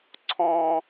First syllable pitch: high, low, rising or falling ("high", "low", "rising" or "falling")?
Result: high